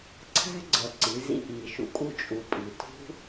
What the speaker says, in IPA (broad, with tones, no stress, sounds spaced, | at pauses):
ǀʰ æ̤˦ ɡ͡ǀ ʌ˨ ǀ i˨˦ z ḭ˧ ʔ iː˨ ʃ ṵ˨ kʼ u˦˨ t͡ʃʼ u˨ pʼ i˨ tʰ ṳ˦